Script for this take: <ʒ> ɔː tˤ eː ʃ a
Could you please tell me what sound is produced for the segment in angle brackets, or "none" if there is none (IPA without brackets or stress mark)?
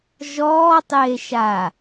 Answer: ʒ